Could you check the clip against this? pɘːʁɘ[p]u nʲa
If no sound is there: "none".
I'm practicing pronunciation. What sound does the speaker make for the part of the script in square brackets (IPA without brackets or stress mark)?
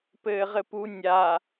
p